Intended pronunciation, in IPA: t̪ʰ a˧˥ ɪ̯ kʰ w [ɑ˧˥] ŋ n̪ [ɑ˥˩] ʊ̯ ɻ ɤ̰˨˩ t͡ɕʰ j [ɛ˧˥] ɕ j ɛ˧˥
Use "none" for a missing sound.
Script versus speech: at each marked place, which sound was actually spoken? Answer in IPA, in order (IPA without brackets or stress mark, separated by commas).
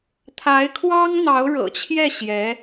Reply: ɑ˥, ɑ˧˥, ɛ˥˩